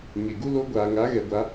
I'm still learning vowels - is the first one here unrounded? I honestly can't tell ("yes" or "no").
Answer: yes